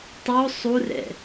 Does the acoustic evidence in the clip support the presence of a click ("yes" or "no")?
no